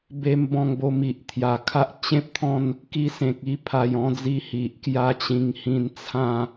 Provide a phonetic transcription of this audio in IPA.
be˧mbɔ̃˧ŋ bo˧mi˨ʔt̪ʰja˨˩kʰa˦ʔ t͡ɕẽ˦p̚t̪ʰɔ̃˥˧n | ki˧sẽ˨k̚i˦ pʰa˨˩jɔ̃˥˧d͡zi˧ hi˨ʔkja˦t͡ɕĩ˧ŋ hĩ˧nt͡sʰã˥˧

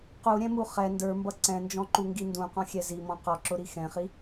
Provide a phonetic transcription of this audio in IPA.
quɾʲɛ̃mu χɛ ndə˞mbʌ ǀɛ̃nd͡ʒɔ̃ǃuŋɡi ndũqɔ̃xʲɛ zimɔ̃ qɔǁʊɾi xɛ̃χi

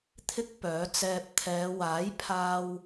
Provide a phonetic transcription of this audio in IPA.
t̪ʰɪ˥k̚pœː˨˥ t͡sɛː˧p̚ t̪ʰɛː˨˧waː˨˥j pʰaː˥w

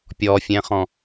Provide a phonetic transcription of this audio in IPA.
pʲɔfʲɛ̃χɔ̃

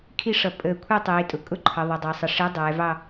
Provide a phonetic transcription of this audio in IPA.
kʰi˥˧ʂʌ˧˩ pʼəː˧˩ kʷʰɛ˥˧tˤiː˩˧ tʼʊ˩˥ kʼʊ˥˧ǃʰʌ˩˧ ðˤə˩˧dˤɑ˩˧sˤə˩˧ ʂi˩˥ dˤɛː˩˧vɑ˥˧

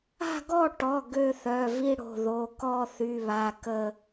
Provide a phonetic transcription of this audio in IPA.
a̤˦˨ɡɔ˦˨ʈɔ˩˧˩ ɡø˦˨θœ˩˧˩vi˦˨ ɽo̤˩˧˩ðo˩˧˩ kɔ˦˨θy˩˧˩βa˩˧˩ kə˦˨

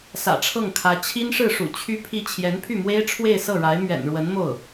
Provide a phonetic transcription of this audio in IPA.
sä̰˨˩ʈ͡ʂʰɤ˥˩ŋkʰä˧˥ t͡ɕʰi˥nʂɻ̩˥˩ʂṵ˨˩ t͡ɕʰy˥pʰi˥˩ t͡ɕʰjɛ˧˥npʰy˥˩mwe˥ɪ̯ ʈ͡ʂʰwe˥˧ɪ̯sɤ˥˩ɻa˧˥ɪ̯ mɥɛ̰˨˩nɻwə˧˥n mo˥˩ʊ̯

